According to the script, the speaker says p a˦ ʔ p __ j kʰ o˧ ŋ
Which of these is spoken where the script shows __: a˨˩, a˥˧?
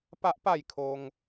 a˥˧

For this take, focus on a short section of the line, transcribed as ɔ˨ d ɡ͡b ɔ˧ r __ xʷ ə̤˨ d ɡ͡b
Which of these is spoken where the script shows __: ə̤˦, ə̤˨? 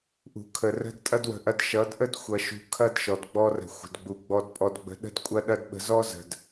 ə̤˨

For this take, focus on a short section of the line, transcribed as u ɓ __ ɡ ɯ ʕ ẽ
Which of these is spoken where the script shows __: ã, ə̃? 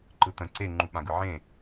ã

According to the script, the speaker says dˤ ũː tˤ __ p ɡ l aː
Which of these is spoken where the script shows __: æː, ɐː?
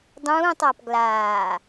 ɐː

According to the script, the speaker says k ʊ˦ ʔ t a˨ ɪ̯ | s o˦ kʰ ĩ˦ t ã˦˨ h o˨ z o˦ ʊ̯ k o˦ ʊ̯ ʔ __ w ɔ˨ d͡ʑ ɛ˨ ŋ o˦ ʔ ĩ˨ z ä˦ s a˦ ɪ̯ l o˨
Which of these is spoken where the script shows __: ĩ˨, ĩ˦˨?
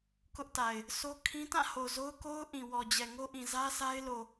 ĩ˨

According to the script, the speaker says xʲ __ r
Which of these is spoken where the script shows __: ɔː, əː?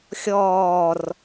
ɔː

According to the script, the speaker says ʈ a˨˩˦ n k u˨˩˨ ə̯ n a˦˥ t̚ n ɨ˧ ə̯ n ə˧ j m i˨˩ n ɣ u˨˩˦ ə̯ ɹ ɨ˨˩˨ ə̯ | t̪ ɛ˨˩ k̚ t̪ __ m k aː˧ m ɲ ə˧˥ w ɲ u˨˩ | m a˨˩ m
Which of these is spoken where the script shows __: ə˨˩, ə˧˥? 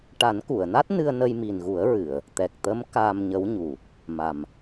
ə˧˥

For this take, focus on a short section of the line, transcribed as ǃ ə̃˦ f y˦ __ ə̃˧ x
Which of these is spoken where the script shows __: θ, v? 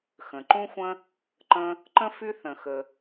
θ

